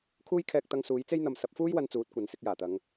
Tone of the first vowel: high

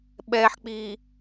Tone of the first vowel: low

